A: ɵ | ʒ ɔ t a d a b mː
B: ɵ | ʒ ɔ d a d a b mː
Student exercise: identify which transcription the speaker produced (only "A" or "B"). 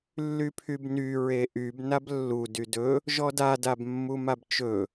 B